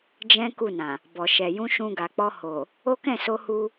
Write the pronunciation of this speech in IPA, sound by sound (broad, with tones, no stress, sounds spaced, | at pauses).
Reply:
d͡ʒ ɛ̃˦ k u˦˨ n ã˨ | b ɔ˨ ʃ ɛ˨ j ũ˧ ʃ ũ˧ ɡ a˨ k͡p ɔ˧ h o˨ | o˦ k ɛ̃˦˨ s o˧ h u˧